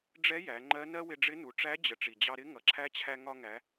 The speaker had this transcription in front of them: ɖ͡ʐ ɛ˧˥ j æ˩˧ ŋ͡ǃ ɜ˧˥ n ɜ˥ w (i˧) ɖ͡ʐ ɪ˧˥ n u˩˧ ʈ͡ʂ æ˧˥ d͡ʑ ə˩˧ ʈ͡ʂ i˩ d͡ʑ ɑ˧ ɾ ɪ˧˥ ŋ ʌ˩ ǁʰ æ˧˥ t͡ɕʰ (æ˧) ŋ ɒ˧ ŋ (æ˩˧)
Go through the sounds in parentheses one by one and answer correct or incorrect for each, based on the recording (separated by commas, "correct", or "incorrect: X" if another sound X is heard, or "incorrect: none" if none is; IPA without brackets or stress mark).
incorrect: ɪ˧, correct, correct